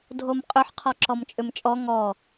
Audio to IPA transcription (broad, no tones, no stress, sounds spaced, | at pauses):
dʱ o m qʼ ʏ ħ qʰ ɔ ǁ ɔ m t͡ʃʼ ʏ m t͡ʃʼ ɔ ŋ ɔ